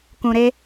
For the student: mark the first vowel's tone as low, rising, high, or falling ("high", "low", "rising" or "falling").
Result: low